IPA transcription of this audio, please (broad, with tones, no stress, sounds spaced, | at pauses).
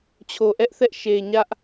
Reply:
t͡ɕʰ o˨ ʔ ɛ˦ ʔ θ ɛ˦ ʔ ʃ e˨ ɲ ä˦ ʔ